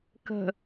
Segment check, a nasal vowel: absent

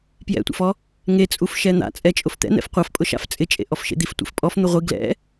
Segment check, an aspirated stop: absent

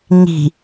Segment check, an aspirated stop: absent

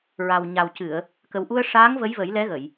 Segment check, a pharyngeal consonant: absent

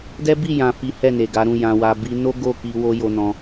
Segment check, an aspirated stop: absent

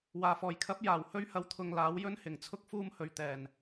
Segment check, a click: absent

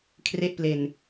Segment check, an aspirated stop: present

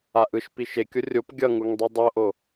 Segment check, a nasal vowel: absent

